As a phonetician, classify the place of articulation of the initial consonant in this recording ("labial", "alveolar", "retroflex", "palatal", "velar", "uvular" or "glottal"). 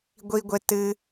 velar